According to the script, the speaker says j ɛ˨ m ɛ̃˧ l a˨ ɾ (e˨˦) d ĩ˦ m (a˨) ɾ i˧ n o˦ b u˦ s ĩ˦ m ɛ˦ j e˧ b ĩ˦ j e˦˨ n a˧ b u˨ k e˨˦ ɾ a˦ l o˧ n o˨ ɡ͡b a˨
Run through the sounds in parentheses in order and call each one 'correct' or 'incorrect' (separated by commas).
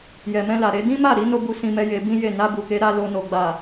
correct, incorrect